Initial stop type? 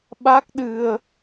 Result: implosive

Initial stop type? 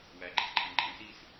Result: click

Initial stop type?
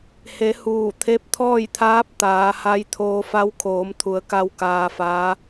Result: aspirated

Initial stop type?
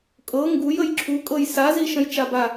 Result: ejective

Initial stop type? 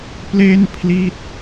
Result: plain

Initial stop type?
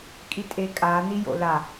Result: ejective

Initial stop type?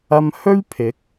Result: aspirated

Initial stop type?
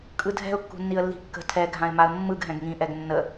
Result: ejective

